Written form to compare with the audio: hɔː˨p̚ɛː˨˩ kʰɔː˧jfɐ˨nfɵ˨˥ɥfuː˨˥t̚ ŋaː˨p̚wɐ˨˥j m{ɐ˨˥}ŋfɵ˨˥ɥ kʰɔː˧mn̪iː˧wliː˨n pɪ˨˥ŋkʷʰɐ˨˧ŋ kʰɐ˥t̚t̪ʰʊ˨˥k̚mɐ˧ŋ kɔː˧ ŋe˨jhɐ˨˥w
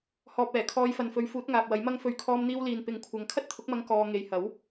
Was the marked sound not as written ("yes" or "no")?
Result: yes